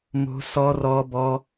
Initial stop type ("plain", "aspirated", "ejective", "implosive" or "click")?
plain